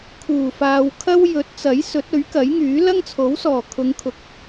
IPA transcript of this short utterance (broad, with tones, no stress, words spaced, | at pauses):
kʰuː˨˩faː˨wkʰɐ˥w jɵ˨˥t̚t͡sɐ˨˥j sɵ˨˥t̚ɵ˨˥ɥkɐ˨˥jŋyː˨˥ lɐ˥ŋt͡sʰo˨˥wsɔː˨˩ kʰʊ˨˧ŋkʰʊ˨k̚